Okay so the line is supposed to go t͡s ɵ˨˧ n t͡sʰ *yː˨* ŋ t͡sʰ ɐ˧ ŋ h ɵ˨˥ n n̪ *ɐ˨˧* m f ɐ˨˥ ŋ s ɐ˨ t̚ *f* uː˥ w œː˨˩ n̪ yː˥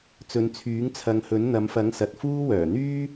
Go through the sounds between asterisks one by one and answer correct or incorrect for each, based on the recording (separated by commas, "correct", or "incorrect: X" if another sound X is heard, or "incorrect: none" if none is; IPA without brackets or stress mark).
incorrect: yː˨˥, correct, correct